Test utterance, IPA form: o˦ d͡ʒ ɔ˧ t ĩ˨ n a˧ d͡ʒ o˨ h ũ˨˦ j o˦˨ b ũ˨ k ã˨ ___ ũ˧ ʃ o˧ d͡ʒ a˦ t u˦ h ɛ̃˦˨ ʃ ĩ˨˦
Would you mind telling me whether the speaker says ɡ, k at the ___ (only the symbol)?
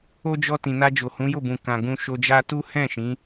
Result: ɡ